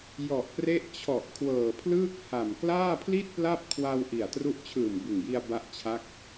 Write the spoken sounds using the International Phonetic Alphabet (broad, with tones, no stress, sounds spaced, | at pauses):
j ɔ˨˩ ʔ p r e˦˥ ʔ t͡ɕʰ ɔ˨˩ ʔ kʰ w ɤː˨˩ pʰ l ɯː˥˩ k̚ h a˨˩ m k l aː˥˩ pʰ l i˥˩ t̚ p l a˥˩ p̚ kʰ w a˧ w ʔ i˨˩ a̯ t r u˦˥ ʔ t͡ɕʰ ɯː˨˩ m b ɯ˨˩ ŋ j i˧ a̯ b a˦˥ ʔ t͡ɕʰ a˦˥ k̚